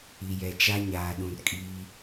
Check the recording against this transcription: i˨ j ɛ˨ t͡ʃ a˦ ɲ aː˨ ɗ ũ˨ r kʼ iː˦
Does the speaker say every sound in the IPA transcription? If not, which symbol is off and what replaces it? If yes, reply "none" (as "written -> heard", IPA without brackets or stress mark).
none